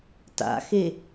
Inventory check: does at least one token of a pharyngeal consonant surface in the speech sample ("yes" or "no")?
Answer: no